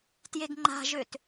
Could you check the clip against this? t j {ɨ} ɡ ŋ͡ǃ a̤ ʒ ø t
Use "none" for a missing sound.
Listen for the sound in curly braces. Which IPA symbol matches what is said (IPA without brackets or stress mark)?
e